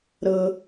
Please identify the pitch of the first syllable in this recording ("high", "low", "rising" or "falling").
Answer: low